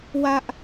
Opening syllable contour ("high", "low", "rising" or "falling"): high